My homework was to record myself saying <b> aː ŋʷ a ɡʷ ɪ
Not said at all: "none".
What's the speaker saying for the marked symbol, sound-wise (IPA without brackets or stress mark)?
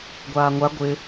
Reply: ɡʷ